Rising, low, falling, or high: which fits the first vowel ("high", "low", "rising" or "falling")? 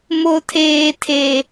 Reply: low